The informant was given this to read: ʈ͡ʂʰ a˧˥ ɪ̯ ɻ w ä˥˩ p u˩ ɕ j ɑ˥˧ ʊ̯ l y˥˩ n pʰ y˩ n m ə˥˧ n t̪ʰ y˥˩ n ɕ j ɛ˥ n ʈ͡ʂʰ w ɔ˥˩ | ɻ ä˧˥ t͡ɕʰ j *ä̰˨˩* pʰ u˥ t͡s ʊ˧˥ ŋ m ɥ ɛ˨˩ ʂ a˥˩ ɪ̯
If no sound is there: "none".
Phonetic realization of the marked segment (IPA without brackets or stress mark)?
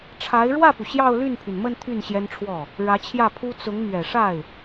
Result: ä˥˩